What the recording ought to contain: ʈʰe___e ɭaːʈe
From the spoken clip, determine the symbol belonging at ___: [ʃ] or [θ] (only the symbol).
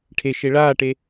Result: ʃ